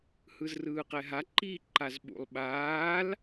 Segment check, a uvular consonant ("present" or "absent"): present